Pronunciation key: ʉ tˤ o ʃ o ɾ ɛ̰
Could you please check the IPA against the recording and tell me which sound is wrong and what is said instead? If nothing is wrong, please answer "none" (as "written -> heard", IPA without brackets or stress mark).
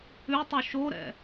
none